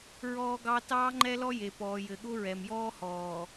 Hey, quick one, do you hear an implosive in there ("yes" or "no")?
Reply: yes